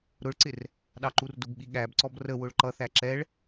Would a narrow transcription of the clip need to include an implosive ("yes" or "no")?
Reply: yes